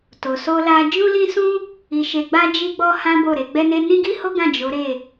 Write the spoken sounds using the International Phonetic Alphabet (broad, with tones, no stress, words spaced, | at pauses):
to˨so˧la˧ d͡ʒũ˦lĩ˦sũ˦ | i˧ʃe˧ɡ͡ba˦ d͡ʒi˦ɡ͡bɔ˦hã˦ bo˦˨ɾe˧ɡ͡bɛ˦ne˦ nĩ˦ɡi˦ho˦ɡã˦˨ d͡ʒo˨˦ɾe˦˨